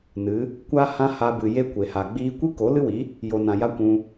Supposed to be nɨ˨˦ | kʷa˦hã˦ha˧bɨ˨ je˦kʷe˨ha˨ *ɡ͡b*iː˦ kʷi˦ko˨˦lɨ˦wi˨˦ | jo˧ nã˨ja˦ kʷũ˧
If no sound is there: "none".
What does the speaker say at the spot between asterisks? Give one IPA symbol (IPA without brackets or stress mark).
ɡ͡b